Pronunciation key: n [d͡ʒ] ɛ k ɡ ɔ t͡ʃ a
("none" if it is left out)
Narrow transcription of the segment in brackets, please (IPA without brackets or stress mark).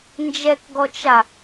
d͡ʒ